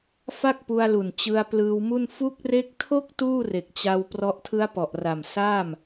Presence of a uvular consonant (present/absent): absent